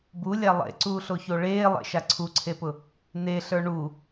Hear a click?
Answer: yes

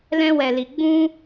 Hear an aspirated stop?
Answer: no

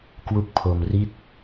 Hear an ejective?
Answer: no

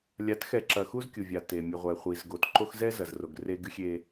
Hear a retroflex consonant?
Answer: no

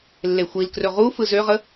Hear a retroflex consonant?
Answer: no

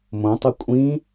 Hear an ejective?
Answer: yes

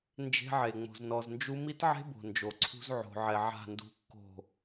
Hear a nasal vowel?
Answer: no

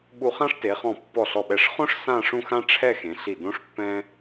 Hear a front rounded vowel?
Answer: no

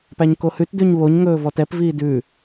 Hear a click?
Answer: no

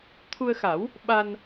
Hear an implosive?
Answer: yes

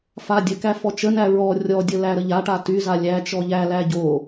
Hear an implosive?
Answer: no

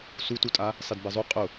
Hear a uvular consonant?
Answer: yes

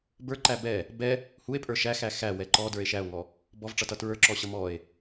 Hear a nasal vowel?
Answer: no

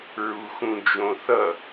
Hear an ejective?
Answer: no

